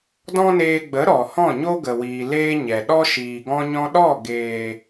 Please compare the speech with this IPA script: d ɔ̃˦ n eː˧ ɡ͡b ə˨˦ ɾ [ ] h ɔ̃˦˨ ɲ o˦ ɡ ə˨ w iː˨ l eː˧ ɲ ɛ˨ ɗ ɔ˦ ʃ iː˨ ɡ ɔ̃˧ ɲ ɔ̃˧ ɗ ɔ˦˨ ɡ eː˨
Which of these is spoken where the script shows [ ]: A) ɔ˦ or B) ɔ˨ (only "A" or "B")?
B